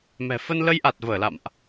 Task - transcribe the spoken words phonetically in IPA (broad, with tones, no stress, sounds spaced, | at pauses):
m ɛ̤˨˩ f ə˧ n l ə˧ j ʔ a˨˩ t̚ v əː˧˩ l a̰˧˨ m ʔ